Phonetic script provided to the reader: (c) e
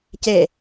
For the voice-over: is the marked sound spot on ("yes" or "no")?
yes